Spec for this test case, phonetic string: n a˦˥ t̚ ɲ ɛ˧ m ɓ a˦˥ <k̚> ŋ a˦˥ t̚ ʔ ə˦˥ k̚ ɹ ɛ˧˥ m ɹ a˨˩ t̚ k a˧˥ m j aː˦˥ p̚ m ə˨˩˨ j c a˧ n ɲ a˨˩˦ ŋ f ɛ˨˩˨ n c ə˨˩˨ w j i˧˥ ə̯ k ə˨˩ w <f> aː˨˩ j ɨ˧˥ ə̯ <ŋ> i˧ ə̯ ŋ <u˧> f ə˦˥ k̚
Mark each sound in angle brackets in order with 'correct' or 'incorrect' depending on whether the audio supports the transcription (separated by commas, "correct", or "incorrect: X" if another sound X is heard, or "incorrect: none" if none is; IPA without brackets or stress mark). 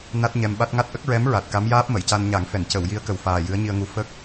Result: incorrect: t̚, correct, incorrect: ɲ, incorrect: u˧˥